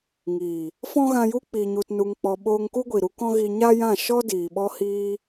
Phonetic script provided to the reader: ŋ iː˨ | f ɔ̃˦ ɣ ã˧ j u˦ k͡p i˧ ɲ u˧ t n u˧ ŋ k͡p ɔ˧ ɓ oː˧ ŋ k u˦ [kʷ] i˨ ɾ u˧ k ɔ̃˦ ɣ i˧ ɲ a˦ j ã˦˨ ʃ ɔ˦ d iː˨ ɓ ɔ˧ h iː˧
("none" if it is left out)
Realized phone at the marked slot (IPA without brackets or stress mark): ɡʷ